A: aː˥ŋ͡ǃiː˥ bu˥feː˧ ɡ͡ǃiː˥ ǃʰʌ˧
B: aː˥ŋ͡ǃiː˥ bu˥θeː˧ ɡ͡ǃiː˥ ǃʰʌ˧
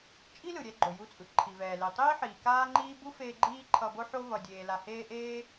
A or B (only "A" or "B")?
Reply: A